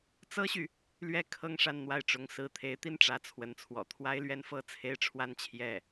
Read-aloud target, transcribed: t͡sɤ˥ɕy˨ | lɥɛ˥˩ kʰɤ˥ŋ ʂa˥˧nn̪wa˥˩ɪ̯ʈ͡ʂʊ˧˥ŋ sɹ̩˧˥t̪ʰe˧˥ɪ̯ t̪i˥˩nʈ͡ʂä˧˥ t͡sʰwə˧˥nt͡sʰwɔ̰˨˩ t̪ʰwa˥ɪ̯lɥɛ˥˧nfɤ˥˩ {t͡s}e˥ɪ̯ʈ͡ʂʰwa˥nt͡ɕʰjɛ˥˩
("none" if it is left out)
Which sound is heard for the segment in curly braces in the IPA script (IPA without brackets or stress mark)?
t͡sʰ